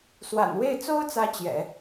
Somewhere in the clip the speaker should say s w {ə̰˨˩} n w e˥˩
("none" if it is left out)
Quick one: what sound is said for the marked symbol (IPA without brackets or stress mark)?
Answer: a̰˨˩